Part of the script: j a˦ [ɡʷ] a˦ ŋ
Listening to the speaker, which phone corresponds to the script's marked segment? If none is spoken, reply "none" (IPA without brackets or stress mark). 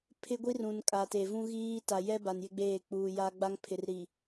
ɡ͡b